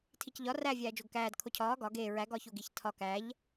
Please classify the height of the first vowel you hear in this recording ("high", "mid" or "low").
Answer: high